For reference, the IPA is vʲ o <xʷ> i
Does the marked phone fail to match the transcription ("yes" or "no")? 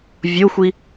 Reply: no